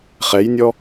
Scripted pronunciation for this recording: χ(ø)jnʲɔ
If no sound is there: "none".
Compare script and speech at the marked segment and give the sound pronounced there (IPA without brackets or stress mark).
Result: ɛ